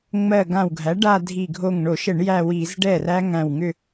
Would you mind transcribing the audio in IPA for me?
ŋ͡m ɜ˧˩ ɡ ã˧˩ w ɡʱ æ˩˥ ɖ a˥˧ dʱ i˧˩ ɡʱ o˧˩ ŋ ɳ o˧˩˧ ʃ ə˧˩˧ ɳ j æ˥˧ w i˧˩˧ z ɖ ɛ˥˩ r æ˦˥ ŋ æ̃˧˩ w ŋ ʏ˥˧

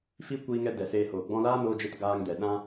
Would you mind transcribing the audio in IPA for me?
f i˦ kʷ iː˧ ŋ ɛ˧ d ɛ˨ s eː˧ h oː˨ ɡ͡b ɔ̃˧ l aː˦ n oː˧ d͡ʒ e˧ t ɡ aː˧ ŋ d ɛ˨ ɗ ã˦

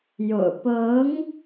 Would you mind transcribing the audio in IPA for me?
j o̰˨˩ ʊ̯ p ɤ˧˥ ŋ

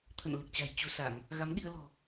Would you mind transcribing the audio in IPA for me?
t̪ʰ ə̰˧˨ n l ɨ˨˩ k̚ t͡ɕ a̤˨˩ j t͡ɕ u˨˦ s a˧˩˨ ŋ | ɣ a˨˦ m ɗ i˧ ə̯ l ɔ̤˨˩

